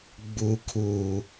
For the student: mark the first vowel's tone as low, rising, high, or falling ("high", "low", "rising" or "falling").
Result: low